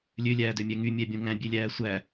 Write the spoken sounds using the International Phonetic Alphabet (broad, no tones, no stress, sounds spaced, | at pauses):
lʲ ø lʲ æː d ø mʲ æ ŋ y mʲ æ bʲ õ ŋ æ̃ bʲ e lʲ æː sʷ æ